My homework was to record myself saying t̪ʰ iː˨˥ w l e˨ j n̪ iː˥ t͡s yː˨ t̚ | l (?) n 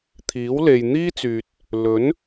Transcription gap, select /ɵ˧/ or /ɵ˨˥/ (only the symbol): ɵ˨˥